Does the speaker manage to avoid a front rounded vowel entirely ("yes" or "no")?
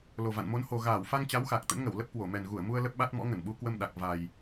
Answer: yes